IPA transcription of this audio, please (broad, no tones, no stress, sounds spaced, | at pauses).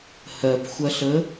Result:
h ɜ p xʷ ɐ ɬ ə